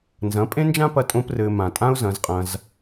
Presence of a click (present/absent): absent